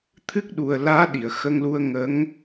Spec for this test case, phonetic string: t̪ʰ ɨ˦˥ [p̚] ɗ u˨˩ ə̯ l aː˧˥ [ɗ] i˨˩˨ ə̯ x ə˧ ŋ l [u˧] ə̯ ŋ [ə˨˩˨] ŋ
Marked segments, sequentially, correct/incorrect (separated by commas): incorrect, correct, correct, incorrect